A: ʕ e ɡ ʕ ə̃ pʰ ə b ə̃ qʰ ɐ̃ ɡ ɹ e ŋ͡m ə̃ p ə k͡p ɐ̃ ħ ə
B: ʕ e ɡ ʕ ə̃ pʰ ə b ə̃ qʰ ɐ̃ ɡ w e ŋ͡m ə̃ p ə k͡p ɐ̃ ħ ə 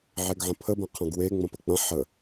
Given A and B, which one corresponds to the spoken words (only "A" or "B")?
B